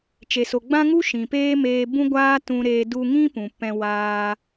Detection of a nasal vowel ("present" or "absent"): present